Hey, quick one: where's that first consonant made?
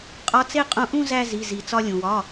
uvula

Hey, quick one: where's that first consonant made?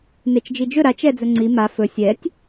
tongue tip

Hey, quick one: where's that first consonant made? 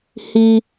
throat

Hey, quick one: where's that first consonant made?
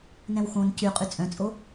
tongue tip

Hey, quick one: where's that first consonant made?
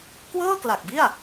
velum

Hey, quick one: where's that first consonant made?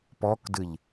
lips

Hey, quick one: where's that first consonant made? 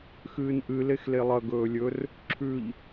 velum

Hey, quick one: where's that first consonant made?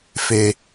lips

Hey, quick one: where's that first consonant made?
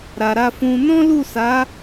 tongue tip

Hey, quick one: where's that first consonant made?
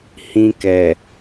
throat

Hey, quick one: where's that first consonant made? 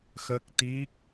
velum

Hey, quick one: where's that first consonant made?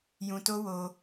palate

